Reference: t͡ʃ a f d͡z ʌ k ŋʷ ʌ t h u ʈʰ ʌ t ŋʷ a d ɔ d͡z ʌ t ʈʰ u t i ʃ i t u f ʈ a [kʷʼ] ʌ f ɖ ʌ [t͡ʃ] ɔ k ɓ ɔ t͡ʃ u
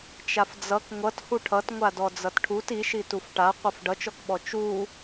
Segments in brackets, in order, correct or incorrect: incorrect, correct

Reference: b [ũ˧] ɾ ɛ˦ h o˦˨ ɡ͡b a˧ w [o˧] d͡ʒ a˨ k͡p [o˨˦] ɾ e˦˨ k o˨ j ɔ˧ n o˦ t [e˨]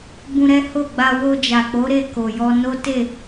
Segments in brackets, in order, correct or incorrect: correct, correct, correct, incorrect

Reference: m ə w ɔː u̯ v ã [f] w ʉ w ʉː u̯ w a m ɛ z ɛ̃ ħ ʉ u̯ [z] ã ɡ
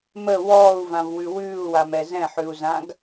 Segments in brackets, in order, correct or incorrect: incorrect, correct

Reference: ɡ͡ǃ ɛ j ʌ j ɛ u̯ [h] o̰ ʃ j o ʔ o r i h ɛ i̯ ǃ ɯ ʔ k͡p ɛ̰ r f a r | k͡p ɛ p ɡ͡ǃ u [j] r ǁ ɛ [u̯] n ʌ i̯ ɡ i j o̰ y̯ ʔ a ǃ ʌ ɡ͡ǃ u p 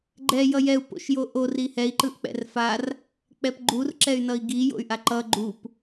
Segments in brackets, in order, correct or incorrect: incorrect, incorrect, incorrect

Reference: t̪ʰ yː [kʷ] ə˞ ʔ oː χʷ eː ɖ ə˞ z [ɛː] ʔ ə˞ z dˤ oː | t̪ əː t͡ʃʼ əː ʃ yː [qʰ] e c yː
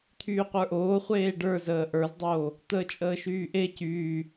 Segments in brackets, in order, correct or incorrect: incorrect, incorrect, incorrect

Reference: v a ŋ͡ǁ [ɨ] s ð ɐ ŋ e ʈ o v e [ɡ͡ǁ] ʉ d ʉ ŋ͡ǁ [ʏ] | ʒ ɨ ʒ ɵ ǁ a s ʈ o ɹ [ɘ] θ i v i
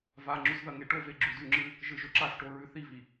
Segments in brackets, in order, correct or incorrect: incorrect, correct, incorrect, incorrect

